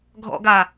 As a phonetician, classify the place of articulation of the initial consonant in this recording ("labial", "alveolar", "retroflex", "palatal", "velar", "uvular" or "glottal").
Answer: velar